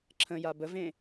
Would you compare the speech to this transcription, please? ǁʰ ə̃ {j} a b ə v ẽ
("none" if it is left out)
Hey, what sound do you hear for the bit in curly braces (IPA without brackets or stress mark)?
j